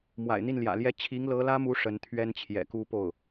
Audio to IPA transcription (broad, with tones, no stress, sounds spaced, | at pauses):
m w a̰˨˩ ɪ̯ n̪ i˥˩ n l j ä̰˨˩ l j ɛ˥ t͡ɕʰ i˧˥ ŋ l ɤ˧˥ l ä˥ m u˧˥ ʂ ə˧˥ n t̪ʰ ɥ ɛ˥ n t͡ɕʰ j ɛ̰˨˩ k u˥ p o˥˩ ʊ̯